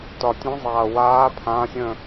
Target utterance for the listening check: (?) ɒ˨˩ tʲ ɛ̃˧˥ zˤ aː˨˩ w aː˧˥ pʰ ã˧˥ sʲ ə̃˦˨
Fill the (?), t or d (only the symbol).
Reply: t